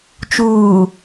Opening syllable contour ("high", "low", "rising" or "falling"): low